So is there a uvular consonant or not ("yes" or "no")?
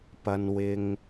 no